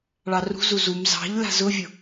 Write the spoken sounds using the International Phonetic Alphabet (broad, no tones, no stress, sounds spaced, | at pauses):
ɭ ɑ r ṳ z u z u m z ɑ̤ ʎ l a̤ z ʊ vʲ ʊ